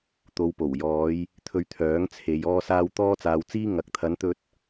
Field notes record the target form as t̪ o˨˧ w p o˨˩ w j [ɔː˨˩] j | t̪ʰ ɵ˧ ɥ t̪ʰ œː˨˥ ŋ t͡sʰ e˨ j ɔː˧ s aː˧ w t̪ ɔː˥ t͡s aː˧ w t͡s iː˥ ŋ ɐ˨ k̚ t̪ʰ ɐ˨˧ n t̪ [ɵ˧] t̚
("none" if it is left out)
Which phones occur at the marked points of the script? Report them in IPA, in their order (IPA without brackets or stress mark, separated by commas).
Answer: ɔː˨˧, ɵ˧